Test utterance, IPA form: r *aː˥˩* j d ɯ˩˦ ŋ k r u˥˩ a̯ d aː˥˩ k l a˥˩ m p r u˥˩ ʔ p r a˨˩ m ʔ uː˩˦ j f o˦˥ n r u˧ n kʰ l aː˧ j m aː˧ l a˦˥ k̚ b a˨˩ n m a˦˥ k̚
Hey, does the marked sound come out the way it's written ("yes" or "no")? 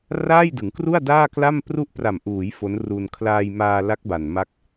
yes